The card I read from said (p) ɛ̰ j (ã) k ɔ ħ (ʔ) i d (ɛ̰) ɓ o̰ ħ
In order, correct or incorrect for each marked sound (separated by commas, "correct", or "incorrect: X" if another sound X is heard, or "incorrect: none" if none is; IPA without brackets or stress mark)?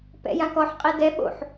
correct, correct, incorrect: qʼ, incorrect: ɛ